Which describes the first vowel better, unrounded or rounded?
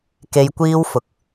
unrounded